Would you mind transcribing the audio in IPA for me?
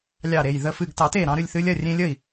lʲ ɑ˧˩ ɾ e˧˩ j ð ə˧˩ f ɨ˧˩ ɡ t ɑ˨˩˦ t e˧˩ ɾ ɑ̃˧ ɾ ɨ˥˩ lʲ θ ɨ˧ lʲ ɐ˥˩ rʲ ẽ˧ lʲ ə˥˩ i̯

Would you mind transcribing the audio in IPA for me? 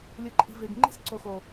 lʲ ɯ˨ ǃʼ i̤˨ v e˨ ɡ ŋ͡ǃ i̤˦ s ǀ o˨ x o˨

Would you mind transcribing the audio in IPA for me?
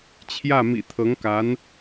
t͡ɕʰ j ä˥˩ m ḭ˨˩ t̪ʰ ɤ˧˥ ŋ k a˧˥ n

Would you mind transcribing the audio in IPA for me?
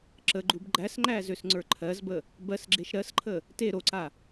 ǁ ə ɡ͡ǃ u b ɡ͡ǃ æ s ŋ͡ǃ æ z ø s ŋ͡ǀ ə˞ ǃʰ ɜ z b ə | b ɜ s ɡ͡ǁ e ʃ ɾ ɜ s ǃʰ ə | t e ɾ o ǀ a

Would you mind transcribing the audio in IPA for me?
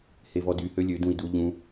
h e v ɔ d y h ø lʲ ø d ũ i̯ d u ʎ ũ

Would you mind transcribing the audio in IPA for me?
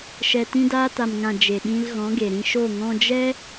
ʃ ɛ˨ t ĩ˧ d aː˧ t a˨ m ŋ ã˨ d͡ʒ e˨ ɗ ĩ˧ l ɣ ɔ̃˨˦ ɡ e˨ ɾ ĩ˧ ʃ o˦˨ ŋ ɔ̃˧ d͡ʒ ɛ˦

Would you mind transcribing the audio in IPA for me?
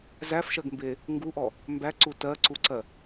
z æ f ʃ ɜ ɡ m b e | ŋ ɡ u ʔ ɔ | m b æ ǀ u t ɜ ǀ u ǀ ɜ

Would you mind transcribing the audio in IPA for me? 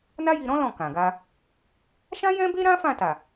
n a˦ j i˧ ɾ ɔ̃˦ l ɔ̃˦˨ k ã˨ ɡ a˧ | ʃ ã˦ j ɛ̃˦ b e˦ ɾ ã˦ f ã˦˨ t a˨

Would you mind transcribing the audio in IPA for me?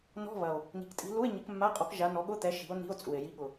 n ɔ̤˧˥˧ β ɐ˨˩ o̯ | n i̤˨˩ k tʼ i̤˨˦ l u˧˥˧ e̯ ɲ ɪ˨˦ k mː a˧˥˧ qʼ ɔ˨˦ k ʒ a˨˦ n ɔ˨˦ ɠ ʊ˧˥˧ t̪ ɛ˨˦ ʃ i̤˨˦ o̯ n i̤˧˥˧ o̯ t͡sʼ u˨˩ e̯ j i˨˦ ɠ ʊ˨˩

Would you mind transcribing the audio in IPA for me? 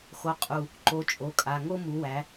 x o˨˥ qʼ u˧˩ | ǃ o˨˥ t͡ʃʼ o˩˧˩ kʼ a˩˧˩ ŋ o˦ m u˨˥ w æ˨˥

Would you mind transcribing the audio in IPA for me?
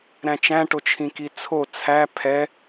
ɾ æ̃ t͡ʃ æ̃ ʈ o t͡ʃʰ ĩ k i t͡sʰ o t͡sʰ æ pʰ ɛ

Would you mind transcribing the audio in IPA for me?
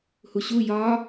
h u ɕ u j ɒ

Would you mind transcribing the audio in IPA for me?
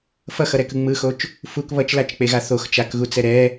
f ʌ x ʌ ɾ ɛ k ɯ ŋ͡m ɯ x o t͡ʃ | f u k β ʌ t͡ʃ l a t͡ʃ k͡p e ɣ a θ o x t͡ʃ a k ɣ u t͡s ɛ ɾ ɛ

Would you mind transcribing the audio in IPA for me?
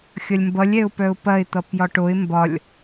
xʲ ʌ lʲ m b ʌ lʲ ɛ ʊ̯ p œ ʊ̯ p ɐ ɪ̯ t̪ ʌ p j ɒ ʈ o ɪ̯ m b ɒ lʲ

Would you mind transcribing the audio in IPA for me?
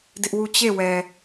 d ɪ˦ ʔ w u˦˨ t͡ɕ e˦˨ w ɛ˨

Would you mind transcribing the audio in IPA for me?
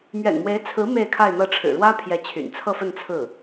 m ɥ ɛ̰˨˩ n m w e˧˥ ɪ̯ t͡sʰ ɹ̩˧˥ m e˥˧ ɪ̯ kʰ a˥˧ ɪ̯ n̪ ɤ˥˩ ʈ͡ʂʰ ɻ̩˨˩ ɻ w ä˥ pʰ j ɛ˧˥ t͡ɕʰ y̰˨˩ n t͡sʰ ɤ˥˧ f ə˥˧ n t͡sʰ ɹ̩˥˩

